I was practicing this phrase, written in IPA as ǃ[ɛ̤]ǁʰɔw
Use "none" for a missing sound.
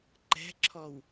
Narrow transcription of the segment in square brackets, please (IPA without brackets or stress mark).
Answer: ɛ̤